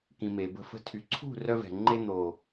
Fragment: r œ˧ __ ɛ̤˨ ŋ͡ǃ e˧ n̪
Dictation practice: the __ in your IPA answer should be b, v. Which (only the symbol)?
v